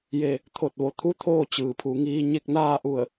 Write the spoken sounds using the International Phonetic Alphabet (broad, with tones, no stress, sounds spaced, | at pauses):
j e˧˩ | t̪ʰ o˧˩ t̚ ʋ o˩ t̪ʰ u˧˥ t̪ʰ oː˥˨ t͡ɕ ɯː˩ pʰ u˩˧ ŋ iː˧ ɲ e˥˨ k̚ n aː˥˨ ʔ u˧˩ ə̯